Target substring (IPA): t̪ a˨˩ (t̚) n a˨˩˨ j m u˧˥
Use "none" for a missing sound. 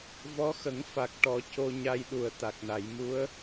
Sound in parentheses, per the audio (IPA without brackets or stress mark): k̚